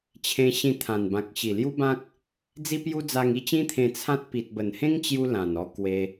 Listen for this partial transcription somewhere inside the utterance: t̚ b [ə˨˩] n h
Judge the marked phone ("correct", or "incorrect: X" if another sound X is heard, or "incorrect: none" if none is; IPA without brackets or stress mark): correct